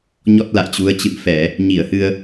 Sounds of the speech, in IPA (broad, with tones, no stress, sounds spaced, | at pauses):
ɲ ɔ˦˥ t̚ l a̰˧˨ j t͡ɕ u˨˦ ə̯ t͡ɕ ɨ̰˧˨ ŋ f ɛ˧˩˨ | ɲ i˧˩ ə̯ h ɨ˧ ə̯